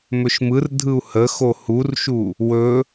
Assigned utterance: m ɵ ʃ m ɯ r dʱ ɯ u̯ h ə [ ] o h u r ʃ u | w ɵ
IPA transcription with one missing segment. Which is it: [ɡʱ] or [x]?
x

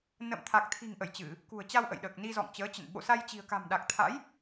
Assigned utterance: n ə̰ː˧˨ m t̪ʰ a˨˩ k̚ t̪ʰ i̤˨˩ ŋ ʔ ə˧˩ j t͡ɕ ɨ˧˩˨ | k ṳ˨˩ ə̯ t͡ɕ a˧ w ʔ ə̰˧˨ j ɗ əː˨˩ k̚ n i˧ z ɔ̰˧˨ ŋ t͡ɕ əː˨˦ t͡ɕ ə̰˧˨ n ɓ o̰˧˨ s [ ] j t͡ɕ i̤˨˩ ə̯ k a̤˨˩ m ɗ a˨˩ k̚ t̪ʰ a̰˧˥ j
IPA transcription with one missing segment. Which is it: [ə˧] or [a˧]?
a˧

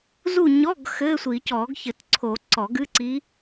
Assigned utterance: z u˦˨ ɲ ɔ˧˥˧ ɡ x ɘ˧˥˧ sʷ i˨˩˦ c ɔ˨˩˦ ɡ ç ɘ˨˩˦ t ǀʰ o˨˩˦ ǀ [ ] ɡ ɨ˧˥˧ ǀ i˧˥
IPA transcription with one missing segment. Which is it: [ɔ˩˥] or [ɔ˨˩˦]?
ɔ˨˩˦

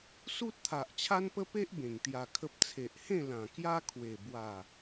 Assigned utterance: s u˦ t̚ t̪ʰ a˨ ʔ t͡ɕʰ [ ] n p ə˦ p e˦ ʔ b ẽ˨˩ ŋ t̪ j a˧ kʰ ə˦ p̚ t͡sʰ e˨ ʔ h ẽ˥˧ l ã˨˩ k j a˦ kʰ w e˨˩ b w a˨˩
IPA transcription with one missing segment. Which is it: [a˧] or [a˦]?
a˦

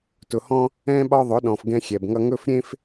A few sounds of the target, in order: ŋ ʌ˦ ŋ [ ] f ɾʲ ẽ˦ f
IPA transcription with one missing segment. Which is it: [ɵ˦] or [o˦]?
ɵ˦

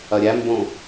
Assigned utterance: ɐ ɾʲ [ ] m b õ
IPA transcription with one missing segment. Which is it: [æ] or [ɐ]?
æ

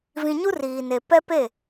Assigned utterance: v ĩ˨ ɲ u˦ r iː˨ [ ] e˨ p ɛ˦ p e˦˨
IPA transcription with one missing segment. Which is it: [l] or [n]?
n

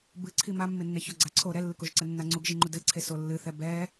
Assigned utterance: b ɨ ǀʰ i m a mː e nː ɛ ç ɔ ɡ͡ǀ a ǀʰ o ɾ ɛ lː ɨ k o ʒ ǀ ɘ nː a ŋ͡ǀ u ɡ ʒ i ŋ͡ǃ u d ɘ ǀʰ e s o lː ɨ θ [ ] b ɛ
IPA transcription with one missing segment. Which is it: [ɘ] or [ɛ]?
ɛ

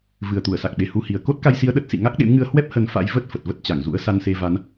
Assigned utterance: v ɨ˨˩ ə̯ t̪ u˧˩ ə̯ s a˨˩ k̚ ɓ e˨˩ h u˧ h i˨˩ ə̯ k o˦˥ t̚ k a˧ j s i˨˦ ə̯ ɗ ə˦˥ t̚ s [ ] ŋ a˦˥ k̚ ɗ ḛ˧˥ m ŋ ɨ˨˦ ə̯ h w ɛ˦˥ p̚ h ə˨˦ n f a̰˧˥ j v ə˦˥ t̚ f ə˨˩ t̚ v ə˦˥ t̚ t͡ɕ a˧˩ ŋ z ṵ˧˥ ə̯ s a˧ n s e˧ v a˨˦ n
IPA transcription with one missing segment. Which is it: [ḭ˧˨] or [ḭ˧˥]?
ḭ˧˨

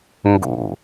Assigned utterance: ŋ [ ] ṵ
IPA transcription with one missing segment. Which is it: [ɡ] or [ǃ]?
ɡ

